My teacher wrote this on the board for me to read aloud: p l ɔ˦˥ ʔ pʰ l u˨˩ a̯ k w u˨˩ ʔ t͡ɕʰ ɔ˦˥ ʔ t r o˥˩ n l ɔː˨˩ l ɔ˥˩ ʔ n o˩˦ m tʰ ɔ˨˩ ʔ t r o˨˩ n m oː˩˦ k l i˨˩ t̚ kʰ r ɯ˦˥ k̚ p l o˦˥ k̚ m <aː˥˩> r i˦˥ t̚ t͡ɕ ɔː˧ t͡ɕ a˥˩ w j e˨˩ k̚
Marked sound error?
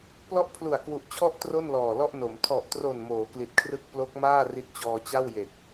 no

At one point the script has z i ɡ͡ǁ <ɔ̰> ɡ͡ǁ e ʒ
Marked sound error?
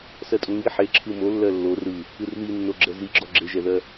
yes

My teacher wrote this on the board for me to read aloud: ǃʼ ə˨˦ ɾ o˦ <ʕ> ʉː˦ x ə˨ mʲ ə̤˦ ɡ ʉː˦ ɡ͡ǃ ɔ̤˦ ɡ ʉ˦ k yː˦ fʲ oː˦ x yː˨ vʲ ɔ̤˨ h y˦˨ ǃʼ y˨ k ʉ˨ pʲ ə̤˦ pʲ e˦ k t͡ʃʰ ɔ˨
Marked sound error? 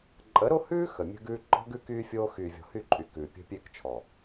yes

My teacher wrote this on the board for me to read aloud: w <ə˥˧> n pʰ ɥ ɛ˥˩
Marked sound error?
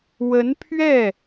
yes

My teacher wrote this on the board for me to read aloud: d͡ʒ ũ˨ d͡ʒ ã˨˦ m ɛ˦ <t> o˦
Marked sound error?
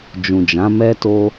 no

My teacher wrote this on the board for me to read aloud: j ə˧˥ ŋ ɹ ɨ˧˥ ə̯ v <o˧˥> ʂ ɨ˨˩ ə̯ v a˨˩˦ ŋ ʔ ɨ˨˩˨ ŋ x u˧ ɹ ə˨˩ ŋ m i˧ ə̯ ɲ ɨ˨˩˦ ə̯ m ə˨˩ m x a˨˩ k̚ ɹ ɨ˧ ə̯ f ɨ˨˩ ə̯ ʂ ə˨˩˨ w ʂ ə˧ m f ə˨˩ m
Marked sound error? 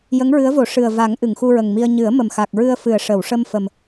yes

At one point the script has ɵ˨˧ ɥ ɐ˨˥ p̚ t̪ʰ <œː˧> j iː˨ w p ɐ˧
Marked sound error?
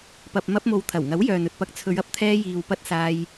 yes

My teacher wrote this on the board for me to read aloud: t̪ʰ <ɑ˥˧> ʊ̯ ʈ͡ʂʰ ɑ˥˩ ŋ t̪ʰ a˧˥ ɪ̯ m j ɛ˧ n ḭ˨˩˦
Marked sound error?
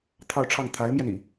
no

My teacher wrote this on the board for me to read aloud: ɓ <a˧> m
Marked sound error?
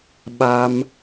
no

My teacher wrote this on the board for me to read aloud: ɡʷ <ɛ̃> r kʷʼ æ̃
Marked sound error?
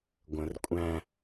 yes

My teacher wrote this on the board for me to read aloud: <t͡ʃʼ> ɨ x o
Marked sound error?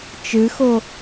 yes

